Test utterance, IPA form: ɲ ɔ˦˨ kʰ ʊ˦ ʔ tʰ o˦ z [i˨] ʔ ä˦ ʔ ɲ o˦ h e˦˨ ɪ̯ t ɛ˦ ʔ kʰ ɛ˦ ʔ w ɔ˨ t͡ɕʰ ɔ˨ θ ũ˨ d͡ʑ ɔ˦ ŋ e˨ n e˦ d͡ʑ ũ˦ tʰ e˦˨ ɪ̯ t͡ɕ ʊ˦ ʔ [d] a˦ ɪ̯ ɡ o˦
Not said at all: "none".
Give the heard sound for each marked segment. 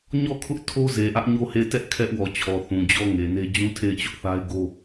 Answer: e˨, θ

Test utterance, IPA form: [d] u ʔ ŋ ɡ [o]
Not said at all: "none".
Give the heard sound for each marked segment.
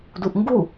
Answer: d, u

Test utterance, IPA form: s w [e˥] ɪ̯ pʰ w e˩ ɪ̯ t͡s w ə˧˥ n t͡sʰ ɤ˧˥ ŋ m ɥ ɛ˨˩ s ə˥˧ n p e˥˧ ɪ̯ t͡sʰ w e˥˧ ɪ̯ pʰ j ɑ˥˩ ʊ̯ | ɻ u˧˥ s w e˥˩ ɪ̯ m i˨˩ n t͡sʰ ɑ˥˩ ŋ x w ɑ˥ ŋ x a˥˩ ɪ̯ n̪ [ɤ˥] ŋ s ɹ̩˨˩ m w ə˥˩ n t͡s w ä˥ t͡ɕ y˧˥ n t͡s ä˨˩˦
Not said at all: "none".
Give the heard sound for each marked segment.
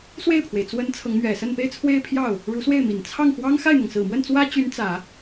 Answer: e˥˩, ɤ˩

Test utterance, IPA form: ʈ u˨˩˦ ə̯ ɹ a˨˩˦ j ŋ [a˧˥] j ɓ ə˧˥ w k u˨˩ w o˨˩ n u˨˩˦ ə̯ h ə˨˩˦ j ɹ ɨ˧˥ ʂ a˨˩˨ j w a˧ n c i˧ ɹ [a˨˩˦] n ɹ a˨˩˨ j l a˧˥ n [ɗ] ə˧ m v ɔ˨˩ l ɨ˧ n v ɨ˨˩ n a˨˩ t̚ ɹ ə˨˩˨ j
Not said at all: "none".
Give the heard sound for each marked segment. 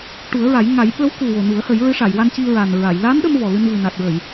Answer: a˨˩˦, a˨˩, ɗ

